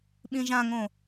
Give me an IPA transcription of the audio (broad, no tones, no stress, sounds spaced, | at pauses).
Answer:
ɓ ĩ ʒ ã ŋ õ